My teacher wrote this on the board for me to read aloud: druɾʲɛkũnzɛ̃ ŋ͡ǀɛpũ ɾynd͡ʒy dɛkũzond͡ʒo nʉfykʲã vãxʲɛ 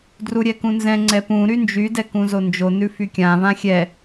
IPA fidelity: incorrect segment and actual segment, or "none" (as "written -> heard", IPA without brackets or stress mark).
none